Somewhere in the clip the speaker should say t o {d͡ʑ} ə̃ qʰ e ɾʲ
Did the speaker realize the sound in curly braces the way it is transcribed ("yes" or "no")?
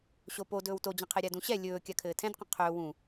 yes